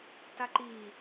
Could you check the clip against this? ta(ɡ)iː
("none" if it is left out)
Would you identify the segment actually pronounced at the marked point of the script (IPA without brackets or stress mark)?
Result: ǃ